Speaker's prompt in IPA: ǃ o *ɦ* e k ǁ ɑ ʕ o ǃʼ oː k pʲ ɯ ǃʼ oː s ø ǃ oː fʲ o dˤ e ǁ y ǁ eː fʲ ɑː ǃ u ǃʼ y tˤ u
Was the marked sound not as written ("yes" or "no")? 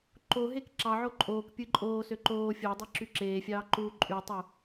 no